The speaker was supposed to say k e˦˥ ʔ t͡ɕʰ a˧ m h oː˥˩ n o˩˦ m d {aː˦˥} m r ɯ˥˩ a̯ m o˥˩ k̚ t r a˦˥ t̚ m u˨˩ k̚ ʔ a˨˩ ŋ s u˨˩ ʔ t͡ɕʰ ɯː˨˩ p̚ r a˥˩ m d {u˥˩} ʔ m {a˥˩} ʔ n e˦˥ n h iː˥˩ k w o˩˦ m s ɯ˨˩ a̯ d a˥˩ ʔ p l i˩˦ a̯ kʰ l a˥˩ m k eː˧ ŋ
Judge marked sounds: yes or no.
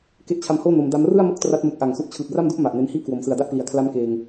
no, yes, no

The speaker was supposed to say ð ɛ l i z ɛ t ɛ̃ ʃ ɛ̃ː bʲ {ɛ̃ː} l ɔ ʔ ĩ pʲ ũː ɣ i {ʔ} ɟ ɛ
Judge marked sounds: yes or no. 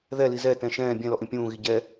no, no

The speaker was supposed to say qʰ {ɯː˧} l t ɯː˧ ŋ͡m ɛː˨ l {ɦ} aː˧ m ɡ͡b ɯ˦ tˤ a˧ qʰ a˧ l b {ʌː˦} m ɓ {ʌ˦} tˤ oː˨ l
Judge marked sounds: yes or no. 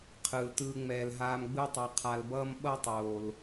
no, yes, yes, yes

